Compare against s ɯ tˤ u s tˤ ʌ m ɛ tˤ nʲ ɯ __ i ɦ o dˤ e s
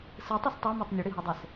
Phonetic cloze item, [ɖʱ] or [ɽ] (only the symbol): ɽ